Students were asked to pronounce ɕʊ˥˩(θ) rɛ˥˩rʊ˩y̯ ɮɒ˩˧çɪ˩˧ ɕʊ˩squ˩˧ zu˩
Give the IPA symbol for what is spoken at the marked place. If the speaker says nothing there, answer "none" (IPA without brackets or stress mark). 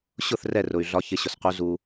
θ